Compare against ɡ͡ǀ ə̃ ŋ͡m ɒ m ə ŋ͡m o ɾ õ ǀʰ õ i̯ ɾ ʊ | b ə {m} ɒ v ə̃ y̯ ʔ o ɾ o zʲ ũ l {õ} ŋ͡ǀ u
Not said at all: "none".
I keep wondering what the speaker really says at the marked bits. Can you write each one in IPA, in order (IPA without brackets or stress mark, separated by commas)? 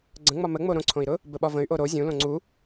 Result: ɓ, õ